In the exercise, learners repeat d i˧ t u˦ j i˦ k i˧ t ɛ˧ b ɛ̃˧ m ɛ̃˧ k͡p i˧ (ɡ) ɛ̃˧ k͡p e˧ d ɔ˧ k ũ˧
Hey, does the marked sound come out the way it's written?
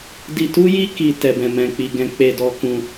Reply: yes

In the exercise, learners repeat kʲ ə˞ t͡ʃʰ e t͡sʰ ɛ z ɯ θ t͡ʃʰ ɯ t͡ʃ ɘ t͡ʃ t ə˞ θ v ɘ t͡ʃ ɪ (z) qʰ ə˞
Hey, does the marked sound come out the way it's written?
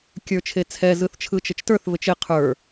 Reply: no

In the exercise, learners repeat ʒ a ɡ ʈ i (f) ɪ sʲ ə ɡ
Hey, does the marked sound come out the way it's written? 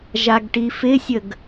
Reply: yes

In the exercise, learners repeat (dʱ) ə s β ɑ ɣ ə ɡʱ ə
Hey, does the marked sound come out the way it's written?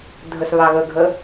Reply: yes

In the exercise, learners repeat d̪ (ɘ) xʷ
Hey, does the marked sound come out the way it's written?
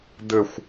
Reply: yes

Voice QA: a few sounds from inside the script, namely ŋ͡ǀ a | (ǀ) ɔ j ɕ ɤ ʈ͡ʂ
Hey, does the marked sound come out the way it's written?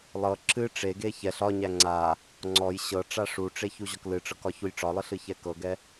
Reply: no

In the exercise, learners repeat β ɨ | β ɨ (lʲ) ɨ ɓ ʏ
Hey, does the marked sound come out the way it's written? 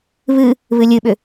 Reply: yes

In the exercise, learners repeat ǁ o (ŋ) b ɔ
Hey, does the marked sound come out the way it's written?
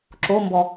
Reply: no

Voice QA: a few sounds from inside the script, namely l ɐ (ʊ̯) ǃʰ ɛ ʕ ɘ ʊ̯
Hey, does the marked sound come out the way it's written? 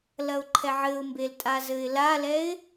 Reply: yes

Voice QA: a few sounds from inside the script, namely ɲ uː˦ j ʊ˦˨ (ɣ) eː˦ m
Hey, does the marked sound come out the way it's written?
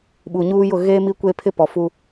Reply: yes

